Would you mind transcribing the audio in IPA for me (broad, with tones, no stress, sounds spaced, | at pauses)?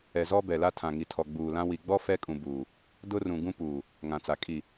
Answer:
ɛ˨ z ɔ˦ b ɛ˨ l a˦ tʰ ã˨ ŋ i˨ tʰ ɔ˨ ɡ͡b uː˨ l ã˦ w i˨ ɡ͡b ɔ˦ f ɛ˦ kʼ ũ˨ b uː˨ | d ʊ˦ r ũ˨ ɡ ũ˦ p uː˨ | ŋ ã˨ t͡s a˨ kʼ i˨